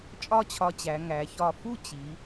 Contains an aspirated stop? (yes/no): yes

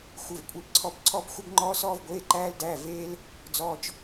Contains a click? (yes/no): yes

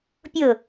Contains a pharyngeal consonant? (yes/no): no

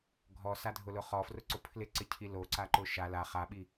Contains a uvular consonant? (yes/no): yes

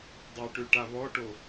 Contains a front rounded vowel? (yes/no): yes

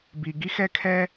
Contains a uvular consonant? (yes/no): no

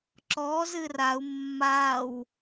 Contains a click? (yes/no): yes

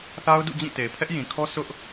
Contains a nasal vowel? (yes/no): yes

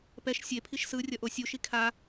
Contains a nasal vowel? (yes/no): no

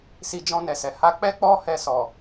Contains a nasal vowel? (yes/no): yes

